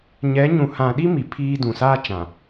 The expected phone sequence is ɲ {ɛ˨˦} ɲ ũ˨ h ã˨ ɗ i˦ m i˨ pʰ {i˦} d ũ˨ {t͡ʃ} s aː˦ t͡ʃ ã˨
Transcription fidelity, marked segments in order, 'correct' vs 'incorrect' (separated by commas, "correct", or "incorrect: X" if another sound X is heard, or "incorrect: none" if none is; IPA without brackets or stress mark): correct, incorrect: iː˦, incorrect: none